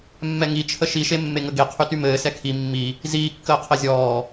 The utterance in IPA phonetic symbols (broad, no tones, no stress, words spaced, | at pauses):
mːɛŋit͡ʃʰə ʃiʃe mːeŋəɡe qʰytymɘːsɛ kʰi mːi | ziːkːəː qʰɘzʲɔː